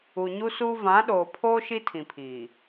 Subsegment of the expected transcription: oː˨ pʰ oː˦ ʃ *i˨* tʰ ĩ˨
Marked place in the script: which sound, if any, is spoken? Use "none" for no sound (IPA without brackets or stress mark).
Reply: i˦